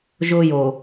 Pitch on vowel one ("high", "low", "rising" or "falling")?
high